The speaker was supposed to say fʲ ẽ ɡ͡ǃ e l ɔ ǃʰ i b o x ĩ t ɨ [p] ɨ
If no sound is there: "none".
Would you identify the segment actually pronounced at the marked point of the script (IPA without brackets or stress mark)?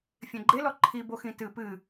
p